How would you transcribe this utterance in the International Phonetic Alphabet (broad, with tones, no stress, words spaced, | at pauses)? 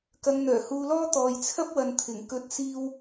kɐ˨˧ŋ n̪œː˨˩ huː˧lɔː˥ t̪ɔː˨jt͡sʰɐ˥p̚wɐ˨n t̪ʰɪ˨˩ŋ kɵ˨˥t̚siː˧w